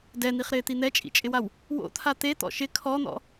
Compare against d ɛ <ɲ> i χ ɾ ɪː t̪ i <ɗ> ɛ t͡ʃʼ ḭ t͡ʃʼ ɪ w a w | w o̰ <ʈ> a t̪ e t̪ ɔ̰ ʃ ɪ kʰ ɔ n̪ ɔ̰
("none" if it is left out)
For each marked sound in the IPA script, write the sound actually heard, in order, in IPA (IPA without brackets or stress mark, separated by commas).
n̪, n̪, t̪ʰ